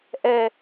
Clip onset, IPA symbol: ʔ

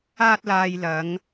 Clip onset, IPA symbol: aː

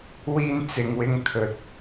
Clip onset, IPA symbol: w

